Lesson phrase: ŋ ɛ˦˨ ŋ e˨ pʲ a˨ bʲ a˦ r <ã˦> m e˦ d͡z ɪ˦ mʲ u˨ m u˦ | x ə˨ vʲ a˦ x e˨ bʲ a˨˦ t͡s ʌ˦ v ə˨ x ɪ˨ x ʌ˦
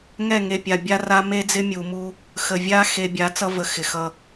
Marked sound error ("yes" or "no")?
yes